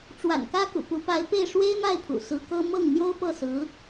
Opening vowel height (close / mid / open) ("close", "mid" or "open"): open